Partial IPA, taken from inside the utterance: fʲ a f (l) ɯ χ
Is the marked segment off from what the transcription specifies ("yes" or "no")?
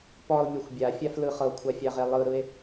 no